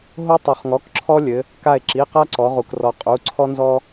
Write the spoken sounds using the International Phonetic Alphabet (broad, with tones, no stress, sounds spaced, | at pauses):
ɦ o˦ tˤ u˩ χ ŋ ɔ˩˧˩ k ǁʰ ɔ˦ lʲ ɘ˩˧ | k a˧˩ e̯ ǁ i˩˧˩ q a˦ ǀ ɔ˩˧ ʁ u˩ k r ɔ˩˧ qʼ u˩˧˩ ǀʰ ɔ˦ n z ɔ˦